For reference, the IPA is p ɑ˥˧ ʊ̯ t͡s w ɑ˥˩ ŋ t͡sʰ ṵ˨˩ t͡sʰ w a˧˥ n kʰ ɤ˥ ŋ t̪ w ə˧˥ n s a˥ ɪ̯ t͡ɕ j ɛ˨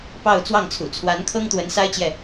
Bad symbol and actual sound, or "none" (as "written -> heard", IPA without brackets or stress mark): none